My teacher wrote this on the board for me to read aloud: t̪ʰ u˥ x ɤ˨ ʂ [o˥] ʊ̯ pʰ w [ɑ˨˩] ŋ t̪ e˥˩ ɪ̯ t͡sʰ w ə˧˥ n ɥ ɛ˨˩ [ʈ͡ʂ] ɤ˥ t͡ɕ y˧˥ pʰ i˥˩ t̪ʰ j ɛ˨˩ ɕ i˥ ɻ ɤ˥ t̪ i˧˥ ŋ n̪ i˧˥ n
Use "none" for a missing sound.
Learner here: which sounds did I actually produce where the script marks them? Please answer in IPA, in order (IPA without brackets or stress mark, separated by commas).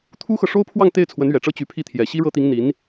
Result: o˥, ɑ˥˧, ʈ͡ʂ